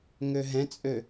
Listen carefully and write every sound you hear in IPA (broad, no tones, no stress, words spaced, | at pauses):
ŋøɦɛ̃t͡sʼø